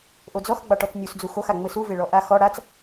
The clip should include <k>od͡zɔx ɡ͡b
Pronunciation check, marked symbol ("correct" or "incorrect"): incorrect